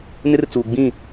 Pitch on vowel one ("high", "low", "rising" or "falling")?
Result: high